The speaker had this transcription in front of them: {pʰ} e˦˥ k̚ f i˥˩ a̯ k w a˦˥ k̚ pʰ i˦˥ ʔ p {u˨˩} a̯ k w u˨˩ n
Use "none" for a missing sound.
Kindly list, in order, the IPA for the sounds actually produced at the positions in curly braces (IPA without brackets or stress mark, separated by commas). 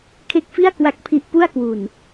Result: kʰ, u˥˩